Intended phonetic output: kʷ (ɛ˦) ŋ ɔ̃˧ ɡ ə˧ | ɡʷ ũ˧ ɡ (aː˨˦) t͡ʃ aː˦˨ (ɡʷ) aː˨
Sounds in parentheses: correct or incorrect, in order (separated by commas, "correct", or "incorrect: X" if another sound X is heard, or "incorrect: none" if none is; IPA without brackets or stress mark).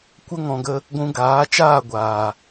incorrect: ə˦, correct, correct